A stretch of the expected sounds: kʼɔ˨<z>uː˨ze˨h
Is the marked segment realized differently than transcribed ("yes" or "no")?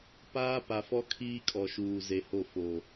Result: yes